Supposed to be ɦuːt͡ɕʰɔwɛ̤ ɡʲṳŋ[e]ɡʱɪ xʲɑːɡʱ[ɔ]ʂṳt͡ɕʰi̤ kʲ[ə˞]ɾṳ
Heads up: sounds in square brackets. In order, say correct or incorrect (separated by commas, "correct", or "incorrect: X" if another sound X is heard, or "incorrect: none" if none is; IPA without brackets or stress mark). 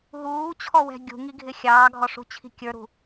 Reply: incorrect: i, correct, correct